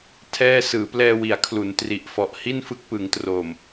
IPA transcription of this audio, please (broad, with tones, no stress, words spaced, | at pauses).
tʰɛː˥˩ sɯː˩˦plɛː˧wi˩˦a̯kʰlu˩˦n tri˨˩ʔfɔ˨˩ʔ hi˥˩nfɯ˦˥k̚pɯ˩˦ŋtroː˨˩m